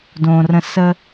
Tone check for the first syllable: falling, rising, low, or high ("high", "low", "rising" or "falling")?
low